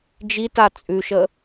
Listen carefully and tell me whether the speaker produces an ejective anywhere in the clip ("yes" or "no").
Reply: yes